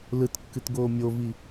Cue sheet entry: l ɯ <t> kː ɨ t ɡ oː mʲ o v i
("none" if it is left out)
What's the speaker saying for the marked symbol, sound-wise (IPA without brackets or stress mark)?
t